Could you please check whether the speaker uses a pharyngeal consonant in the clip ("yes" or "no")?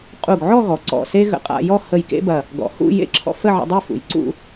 yes